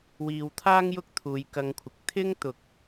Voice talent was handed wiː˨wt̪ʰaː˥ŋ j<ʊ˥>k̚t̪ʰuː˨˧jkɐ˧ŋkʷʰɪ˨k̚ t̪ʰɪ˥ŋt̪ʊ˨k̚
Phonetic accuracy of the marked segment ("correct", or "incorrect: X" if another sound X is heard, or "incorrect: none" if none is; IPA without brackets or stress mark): correct